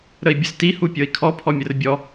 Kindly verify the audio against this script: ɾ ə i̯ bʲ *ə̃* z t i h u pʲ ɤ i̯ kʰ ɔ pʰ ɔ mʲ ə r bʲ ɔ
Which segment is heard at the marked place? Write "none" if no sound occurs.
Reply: ə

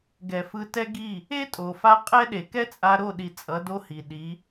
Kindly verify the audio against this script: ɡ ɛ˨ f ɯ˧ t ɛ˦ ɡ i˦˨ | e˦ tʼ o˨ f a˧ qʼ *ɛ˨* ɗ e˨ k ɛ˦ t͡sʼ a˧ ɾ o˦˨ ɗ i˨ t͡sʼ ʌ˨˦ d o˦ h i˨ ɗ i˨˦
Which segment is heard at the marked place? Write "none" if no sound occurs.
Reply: ɛ˦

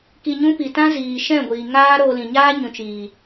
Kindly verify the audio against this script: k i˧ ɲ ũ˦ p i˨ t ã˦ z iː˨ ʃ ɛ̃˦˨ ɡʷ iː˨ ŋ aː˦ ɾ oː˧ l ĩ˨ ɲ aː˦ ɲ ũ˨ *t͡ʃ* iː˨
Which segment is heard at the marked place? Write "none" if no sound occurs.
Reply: t͡ʃ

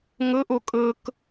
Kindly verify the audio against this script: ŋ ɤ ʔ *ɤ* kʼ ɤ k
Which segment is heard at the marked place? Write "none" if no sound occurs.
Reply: o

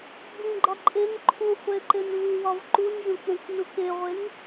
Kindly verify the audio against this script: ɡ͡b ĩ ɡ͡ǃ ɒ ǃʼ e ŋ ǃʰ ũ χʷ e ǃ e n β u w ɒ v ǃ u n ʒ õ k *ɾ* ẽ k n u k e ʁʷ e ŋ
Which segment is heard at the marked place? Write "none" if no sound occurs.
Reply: ɾ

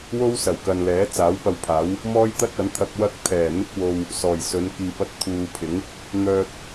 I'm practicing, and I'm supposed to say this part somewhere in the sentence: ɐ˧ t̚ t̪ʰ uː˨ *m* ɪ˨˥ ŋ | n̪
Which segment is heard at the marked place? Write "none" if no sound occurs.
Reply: pʰ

